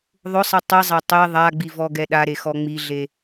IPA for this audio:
ðˤ ʊ sˤ ɛ tˤ i zˤ a tˤ e ðˤ a ɡ͡b i v ɔ ɡ ɛ ɗ a ɾ e x ɔ ŋ͡m i ɮ e

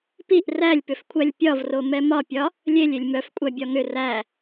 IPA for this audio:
p i ʔ r æ lʲ p ʏ f kʷʰ æ lʲ pʲ ɒ v r o m ɛ m ɒ pʲ ɒ | lʲ e lʲ e lʲ m œ f kʷʼ æ bʲ ɒ ŋ ʏ r æ

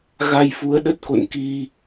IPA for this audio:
ɣ a˧ j f u˨˦ ə̯ ɗ ə˦˥ t̚ k o̰˧˨ n k i˧

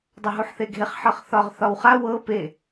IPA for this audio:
dˤ ɤ ɦ u ħ θ e ɡʱ e χ ħ ɤ χ θ ɒ ʁ θ ɒ w χ a w ɤ p e

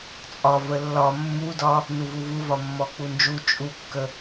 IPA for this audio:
t͡sʼ ɒ v ə lː ɒ mː u d ɒ | n u v u v u v ɒ mː ɔ k͡p u n d͡ʒ u t͡ʃʼ u kː ə

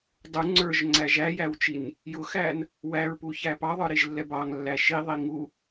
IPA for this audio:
dˤ u ŋ͡ǀ ə˞ ʒ ŋ͡ǀ æ ʒ æ j æ w t͡ʃ i n | j ʊ x æ n | w æ ɹ p u ç æ p ɑ ðˤ ə˞ ɾ i ʒ lː ɛ b ɑ ŋ lː æ ʃ i ðˤ i ŋ u

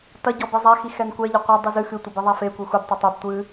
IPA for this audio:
t ɐ ɟ ɔ b i zˤ a x i x ɛ n kʷ ɛ ʎ ɘ qʷ ɐ dˤ ɨ z ɨ x ɨ tʷ ɘ b e ðˤ a f e kʷ e xʷ i b tˤ ɘ tˤ o b tʷ ɨ

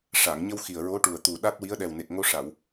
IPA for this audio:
ʂ a˨˩˨ ŋ ɲ ə˧ w x i˨˩ ə̯ ɹ o˧˥ ʈ u˨˩ ə̯ t̪ u˨˩ ɗ a˦˥ t̚ w i˧˥ ə̯ ɗ ɛ˨˩ w n e˨˩ k̚ ŋ o˧ ʂ a˨˩˨ w

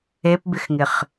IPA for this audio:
e p b ɪ x ŋ ɪ χ

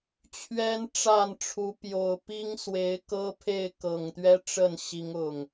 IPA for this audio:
t͡ɕʰ ɥ ɛ˦ n ʈ͡ʂ a˥˨ n ʈ͡ʂʰ u˨˦ p j o˨˩ ʊ̯ p i˦ ŋ s w e˨˦ ɪ̯ k ɤ˦ pʰ e˥˨ ɪ̯ k ɤ˨˩ ŋ t̪ ɥ ɛ˦ ʈ͡ʂ ə˥˨ n ɕ i˨˦ ŋ ʊ˨˩ ŋ

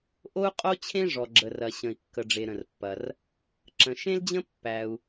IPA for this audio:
ʔ o˥ u̯ qʼ o˥ t͡ɕʰ ẽ˥ ʐ ɔ˩ ɡ͡ǁ ə˩ r ɐ˩ ɕ ə̃˩ i̯ kː ə˩ ɖ͡ʐ e˩ ɾ ə̃˩ r pː ɐ˩ r | ǁ ə̃˩ ʃ ẽ˥ l d͡ʑ ə̃˥ pː æ˩ u̯

